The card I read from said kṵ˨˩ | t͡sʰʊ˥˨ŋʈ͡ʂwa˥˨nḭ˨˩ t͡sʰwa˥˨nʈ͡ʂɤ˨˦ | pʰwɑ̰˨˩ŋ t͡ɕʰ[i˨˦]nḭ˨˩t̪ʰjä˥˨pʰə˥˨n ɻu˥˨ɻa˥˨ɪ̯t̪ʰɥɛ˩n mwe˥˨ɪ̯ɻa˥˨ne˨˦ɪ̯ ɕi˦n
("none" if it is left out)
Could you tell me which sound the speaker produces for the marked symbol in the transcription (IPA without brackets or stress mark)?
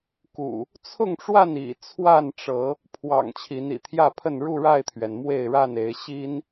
i˨˦